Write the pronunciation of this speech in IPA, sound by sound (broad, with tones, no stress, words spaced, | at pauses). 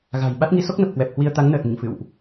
ɣa̤˨˩j ɓa˦˥t̚ŋi˨˦ so˦˥k̚nə˨˩p̚ kwɛ˨˩p̚hwi˧ə̯t̪a˨˦ŋ nəː˨˩t̚ŋḭ˧˨ŋ fɨ̰˧˨wʔ